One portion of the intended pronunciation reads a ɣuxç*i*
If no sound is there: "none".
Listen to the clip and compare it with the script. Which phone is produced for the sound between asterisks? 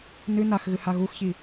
i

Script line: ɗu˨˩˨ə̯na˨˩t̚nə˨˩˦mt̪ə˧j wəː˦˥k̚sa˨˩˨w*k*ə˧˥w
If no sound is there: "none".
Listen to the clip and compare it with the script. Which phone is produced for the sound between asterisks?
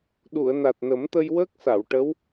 ʈ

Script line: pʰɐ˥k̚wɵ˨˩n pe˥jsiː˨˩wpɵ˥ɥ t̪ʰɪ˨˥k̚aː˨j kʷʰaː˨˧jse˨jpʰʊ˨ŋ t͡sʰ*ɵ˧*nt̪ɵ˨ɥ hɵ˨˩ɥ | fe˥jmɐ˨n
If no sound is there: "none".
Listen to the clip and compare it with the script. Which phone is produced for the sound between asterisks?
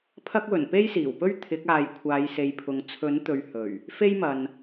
ɵ˨˥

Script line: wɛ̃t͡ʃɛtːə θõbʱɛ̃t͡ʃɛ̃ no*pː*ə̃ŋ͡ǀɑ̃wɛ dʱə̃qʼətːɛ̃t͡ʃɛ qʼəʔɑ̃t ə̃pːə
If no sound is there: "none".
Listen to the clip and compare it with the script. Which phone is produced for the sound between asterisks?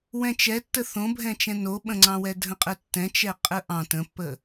ɓ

